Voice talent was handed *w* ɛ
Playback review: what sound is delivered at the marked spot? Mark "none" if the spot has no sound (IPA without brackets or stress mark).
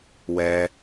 w